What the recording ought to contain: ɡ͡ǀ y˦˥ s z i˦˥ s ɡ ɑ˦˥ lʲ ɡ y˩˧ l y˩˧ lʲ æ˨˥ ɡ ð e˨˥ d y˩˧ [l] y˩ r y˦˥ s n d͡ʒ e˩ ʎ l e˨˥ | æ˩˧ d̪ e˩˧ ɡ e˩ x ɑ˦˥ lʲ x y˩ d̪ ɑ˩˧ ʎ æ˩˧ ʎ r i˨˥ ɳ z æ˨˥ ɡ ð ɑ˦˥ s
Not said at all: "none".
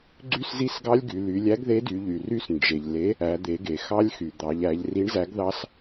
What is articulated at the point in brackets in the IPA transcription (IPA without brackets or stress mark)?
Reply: ʎ